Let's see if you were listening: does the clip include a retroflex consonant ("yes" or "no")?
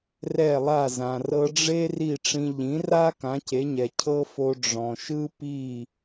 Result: yes